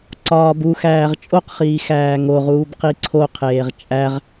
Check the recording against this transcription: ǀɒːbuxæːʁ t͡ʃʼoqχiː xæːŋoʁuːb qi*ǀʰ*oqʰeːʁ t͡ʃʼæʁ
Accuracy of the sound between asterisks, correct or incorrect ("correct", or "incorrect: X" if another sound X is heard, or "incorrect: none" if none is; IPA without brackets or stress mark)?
correct